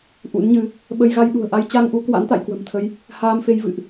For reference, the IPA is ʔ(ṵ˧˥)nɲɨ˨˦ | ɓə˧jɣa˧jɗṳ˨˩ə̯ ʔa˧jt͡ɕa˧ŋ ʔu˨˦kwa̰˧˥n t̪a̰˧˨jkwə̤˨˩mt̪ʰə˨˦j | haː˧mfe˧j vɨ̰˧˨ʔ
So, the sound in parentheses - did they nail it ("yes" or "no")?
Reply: yes